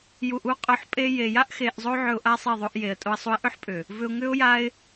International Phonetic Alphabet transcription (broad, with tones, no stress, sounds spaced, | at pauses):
j u˨ ʔ u˧ qʼ ʊ˨ ħ pʼ e˧ j e˨ j a˦ ʔ x e˧ ʔ zˤ o˦ ʕ ʏ˧ ʊ̯ ʔ a˦ sˤ e˦˨ ðˤ o˧ ʔ j e˨ ə̯ tʼ o˧ ə̯ sˤ u˧ ɪ̯ ʔ ʏ˦ ħ pʼ ʏ˨ | v ʏ˧ ʊ̯ ŋ ʏ˦ ʊ̯ j a˦ ɪ̯